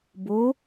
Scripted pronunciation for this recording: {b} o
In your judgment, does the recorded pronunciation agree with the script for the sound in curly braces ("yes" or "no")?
yes